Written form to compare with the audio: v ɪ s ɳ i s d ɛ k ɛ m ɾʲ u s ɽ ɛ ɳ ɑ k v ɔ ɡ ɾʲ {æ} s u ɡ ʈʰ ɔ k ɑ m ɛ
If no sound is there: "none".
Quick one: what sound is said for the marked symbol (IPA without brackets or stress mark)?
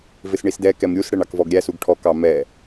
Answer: æ